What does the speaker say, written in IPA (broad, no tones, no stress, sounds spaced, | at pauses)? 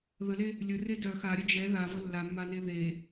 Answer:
ð ə l e | lʲ ɵ r e d œ x a ɾʲ œ d͡ʒ ɛ ð a v ə lː a mː a n e ð e